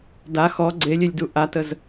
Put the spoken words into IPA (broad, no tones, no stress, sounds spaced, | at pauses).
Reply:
d a x ɔ ɡ͡ǀ e lʲ e lʲ d u ʔ a t ə z